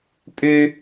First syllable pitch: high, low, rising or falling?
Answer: high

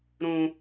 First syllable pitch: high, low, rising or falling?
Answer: low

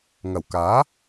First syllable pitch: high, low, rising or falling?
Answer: low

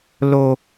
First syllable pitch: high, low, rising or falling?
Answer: high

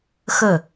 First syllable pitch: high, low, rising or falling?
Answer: falling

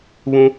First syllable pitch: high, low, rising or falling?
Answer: high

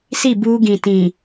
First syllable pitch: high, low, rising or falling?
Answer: falling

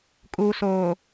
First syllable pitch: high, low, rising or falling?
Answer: low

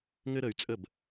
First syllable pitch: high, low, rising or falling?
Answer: high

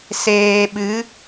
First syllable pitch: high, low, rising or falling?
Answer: low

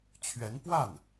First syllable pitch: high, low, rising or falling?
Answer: rising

